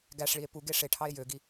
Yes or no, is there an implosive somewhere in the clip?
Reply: no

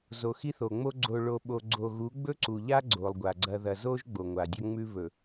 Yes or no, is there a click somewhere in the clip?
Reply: yes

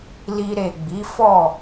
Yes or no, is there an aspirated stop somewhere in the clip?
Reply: no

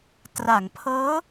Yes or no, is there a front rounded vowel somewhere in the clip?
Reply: no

